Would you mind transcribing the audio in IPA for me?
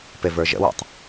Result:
pevə˞ʒə̰wɛ̰tˤ

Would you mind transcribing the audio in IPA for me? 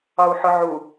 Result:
ɒu̯ħʊʕu

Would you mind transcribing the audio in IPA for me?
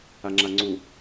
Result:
aŋ͡ǁaŋ͡ǀu

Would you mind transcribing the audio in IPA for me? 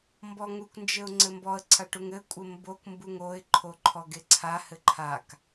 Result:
mbɔŋuknd͡ʒɘʊ̯ ŋ͡ǀɘmbɔə̯ǀʰa ʈuŋɘkʷʼɘ mbokmbuŋ oɪ̯ǃʰo ǃʰɔɡeǀʰahɘ ǃʰak

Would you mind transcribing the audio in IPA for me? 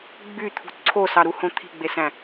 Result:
ɡ͡byt̪ʰṳ ǀʰosɑɾuhõ t̪ʰi̤ɡ͡besæ̃

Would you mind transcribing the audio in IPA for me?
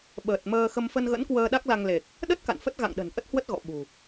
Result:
ɓəː˨˩t̚ məː˧xə˧m fə˧nɣə̰˧˥nkwəː˧ ɗa˦˥k̚la˧ŋle˨˩k̚ | ɗə˦˥t̚ ka̰˧˨nfə˦˥t̚ɣa̰˧˨ŋ ɗə̤˨˩nʔə˦˥t̚hwə˦˥t̚ ɣɔ̰˧˨ɓṳ˨˩

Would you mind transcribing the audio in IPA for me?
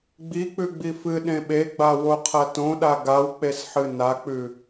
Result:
ɡ͡bi k͡pʉɡ͡bifɨ ɗẽɓeɡ͡ba woqʰɐtõɗa ɡawk͡pesħɨ nak͡pʉ

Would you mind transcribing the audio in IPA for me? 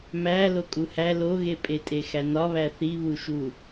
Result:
mæ lokʼuhæ loɣepʼetʼe xænɒβæ θiβuʃu

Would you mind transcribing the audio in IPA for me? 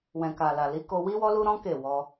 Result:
wɛ̃˨ka˨la˨li˨˦ ko˧wi˦ wɔ˦lu˦ɾɔ̃˦ ke˦˨wɔ˧

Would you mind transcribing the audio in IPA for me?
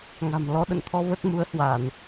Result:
ŋa̤˨˩mlɔ˧ ɗə̰˧˨nt̪ʰɔ˧ və˦˥t̚mu˨˦ə̯hwa˧˩˨n

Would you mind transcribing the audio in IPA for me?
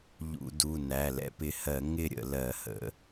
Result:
ʎṵ˧˩˧du˩˧˩ næ˩˧˩lɛ̰˦pɪ˨˦ hɜ˧˩˧ ŋɪ˥˨ɾʲə̰˧˩˧ lɜ˧˩˧hə̰˧˩˧

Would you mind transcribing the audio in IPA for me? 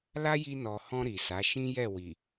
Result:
la˦ji˧nɔ˨hɔ̃˧ ɾi˨sa˨˦ ʃĩ˦jɛ˦˨wi˨

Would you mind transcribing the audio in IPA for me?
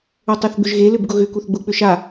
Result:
otˤeθɡ͡bʏʒɣe lʏbɡʊɣʏ kuθɡ͡bʊ k͡pʏʃa

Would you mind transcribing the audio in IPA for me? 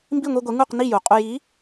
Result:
mbi˥˩ŋʷi˧ɡʷe˩˥ ŋu˥˩qni˥˩ju˩qʼu˧j i˩˥

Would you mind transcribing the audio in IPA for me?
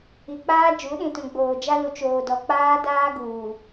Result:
i˨k͡paː˦ d͡ʒu˨˦ɗĩ˨tũ˨ ɡ͡boː˨d͡ʒa˦ lu˨t͡ʃoː˨ dɔ˨k͡paː˦daː˦ɡuː˨

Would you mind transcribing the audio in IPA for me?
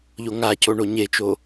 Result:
ʎoŋaco ɳoɲet͡ʃo

